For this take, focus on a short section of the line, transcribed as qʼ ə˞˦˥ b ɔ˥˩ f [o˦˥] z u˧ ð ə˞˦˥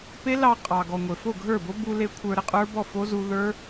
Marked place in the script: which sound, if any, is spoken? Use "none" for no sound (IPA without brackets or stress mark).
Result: o˦˥